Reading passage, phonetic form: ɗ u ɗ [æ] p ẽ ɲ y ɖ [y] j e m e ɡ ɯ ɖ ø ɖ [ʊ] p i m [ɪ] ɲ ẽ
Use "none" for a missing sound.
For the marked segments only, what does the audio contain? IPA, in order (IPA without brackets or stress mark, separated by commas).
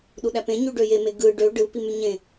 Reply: æ, ø, ɯ, y